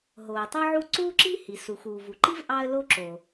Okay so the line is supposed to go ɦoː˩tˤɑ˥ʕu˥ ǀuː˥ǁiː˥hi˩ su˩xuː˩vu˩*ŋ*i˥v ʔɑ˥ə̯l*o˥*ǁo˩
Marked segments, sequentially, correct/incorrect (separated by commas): incorrect, correct